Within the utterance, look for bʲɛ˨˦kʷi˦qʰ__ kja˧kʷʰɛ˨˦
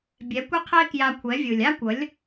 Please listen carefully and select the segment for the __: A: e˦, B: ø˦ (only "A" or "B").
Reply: A